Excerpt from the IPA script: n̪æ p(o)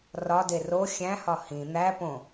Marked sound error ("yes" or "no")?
yes